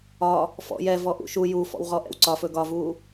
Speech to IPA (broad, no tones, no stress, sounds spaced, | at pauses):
ɒ | f ɔ̰ j ɛ v ɔ ʔ ṵ ʃ u j u f ɔ̰ w ʁ ɔ ʔ ɛ̰ w ǀ ɒ f ɵ ɡ ɒ v uː